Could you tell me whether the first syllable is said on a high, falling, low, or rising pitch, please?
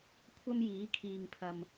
high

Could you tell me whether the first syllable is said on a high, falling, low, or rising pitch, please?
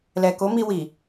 low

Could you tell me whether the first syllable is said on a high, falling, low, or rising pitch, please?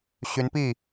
rising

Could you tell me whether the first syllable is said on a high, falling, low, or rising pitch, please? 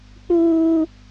high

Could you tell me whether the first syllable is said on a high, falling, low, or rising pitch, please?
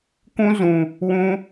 high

